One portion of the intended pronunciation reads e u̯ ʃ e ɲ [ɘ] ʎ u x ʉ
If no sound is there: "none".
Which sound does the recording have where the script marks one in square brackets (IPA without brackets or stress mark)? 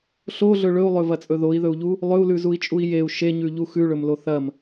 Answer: ʉ